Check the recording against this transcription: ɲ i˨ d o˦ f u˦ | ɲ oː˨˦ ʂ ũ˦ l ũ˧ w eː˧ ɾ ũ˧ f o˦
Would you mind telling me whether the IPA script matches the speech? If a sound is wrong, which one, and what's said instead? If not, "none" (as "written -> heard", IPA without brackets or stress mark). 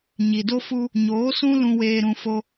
ʂ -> s